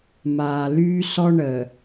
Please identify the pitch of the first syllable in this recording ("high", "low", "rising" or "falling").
low